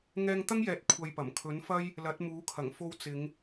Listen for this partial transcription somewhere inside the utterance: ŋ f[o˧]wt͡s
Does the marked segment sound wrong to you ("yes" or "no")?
no